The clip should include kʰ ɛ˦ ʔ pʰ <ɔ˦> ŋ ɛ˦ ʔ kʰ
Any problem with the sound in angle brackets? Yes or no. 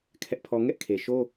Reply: no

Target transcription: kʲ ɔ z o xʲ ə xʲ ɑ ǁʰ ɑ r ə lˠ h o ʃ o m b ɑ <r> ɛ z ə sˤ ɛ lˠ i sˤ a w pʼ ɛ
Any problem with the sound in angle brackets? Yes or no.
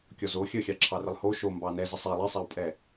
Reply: yes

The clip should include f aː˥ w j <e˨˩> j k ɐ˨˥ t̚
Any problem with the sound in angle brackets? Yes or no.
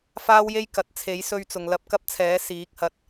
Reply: yes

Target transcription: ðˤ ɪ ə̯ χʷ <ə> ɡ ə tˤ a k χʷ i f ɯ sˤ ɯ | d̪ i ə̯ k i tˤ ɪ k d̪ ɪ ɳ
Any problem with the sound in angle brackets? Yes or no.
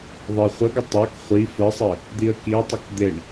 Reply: no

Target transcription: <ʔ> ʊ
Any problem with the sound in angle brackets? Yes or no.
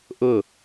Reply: no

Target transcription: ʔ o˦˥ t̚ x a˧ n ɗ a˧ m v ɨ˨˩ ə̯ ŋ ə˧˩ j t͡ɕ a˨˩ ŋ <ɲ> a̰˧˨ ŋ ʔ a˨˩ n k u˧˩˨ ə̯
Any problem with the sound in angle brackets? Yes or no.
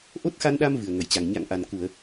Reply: no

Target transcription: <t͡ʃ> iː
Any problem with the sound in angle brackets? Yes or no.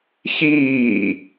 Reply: yes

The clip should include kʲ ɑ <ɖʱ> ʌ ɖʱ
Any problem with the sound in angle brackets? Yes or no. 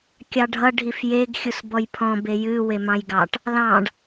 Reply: no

